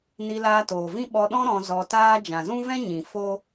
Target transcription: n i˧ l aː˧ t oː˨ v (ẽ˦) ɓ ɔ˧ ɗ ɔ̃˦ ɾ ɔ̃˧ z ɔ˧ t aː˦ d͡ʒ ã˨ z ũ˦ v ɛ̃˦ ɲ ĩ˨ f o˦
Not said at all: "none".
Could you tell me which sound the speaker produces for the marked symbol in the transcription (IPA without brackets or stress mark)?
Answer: ĩ˦